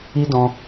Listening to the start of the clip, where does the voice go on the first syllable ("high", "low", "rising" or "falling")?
high